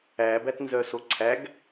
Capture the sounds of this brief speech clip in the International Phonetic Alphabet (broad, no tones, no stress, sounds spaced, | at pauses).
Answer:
æ b æ t n z œ s o ǀʰ æ ɡ